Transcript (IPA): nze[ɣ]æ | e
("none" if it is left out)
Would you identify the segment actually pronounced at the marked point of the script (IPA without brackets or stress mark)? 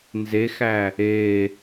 x